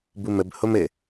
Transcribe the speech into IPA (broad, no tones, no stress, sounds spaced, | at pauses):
b u m ə b h o m ɘ